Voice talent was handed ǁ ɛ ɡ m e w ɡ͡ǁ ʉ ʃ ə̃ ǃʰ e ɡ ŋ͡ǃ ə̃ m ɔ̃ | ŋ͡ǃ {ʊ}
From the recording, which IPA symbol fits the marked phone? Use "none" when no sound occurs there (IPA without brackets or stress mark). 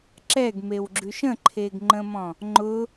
ʊ